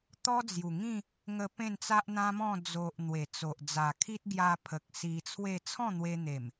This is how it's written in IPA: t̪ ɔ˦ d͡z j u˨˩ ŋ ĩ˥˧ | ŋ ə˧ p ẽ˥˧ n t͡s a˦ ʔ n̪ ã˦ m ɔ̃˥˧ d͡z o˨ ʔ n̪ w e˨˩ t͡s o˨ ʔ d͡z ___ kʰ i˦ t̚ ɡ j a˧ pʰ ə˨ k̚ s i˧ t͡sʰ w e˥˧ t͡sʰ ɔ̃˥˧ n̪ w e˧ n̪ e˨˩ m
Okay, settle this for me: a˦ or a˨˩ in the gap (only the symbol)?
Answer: a˨˩